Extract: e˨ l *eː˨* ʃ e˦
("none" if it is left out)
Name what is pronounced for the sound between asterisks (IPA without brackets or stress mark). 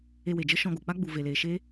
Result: eː˨